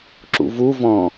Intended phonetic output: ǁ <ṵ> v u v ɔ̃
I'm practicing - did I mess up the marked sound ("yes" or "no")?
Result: no